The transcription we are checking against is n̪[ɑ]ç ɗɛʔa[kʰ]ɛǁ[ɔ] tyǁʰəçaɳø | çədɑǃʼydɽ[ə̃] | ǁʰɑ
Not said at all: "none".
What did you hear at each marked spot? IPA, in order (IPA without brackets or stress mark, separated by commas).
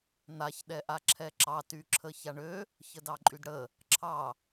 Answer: a, ǁʰ, ɑ, ə